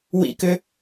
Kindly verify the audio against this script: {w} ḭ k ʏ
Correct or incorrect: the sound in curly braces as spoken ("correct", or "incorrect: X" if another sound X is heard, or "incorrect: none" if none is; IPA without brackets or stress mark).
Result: correct